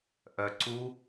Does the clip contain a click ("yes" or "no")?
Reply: yes